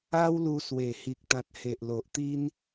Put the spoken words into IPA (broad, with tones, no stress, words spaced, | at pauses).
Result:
a˦wlu˧swe˨˩ hi˨k̚t̪ã˨t̚he˨ʔlo˨ʔ t̪i˦n